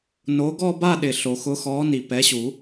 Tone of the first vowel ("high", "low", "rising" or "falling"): rising